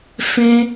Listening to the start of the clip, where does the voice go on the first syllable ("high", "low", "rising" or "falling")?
high